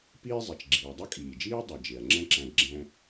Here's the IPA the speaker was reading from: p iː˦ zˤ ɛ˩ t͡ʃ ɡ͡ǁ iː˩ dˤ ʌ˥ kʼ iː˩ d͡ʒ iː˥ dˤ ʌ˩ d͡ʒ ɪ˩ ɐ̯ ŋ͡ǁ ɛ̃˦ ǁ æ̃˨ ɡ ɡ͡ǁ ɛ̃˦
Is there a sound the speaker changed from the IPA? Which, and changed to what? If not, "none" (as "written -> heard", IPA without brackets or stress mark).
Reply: none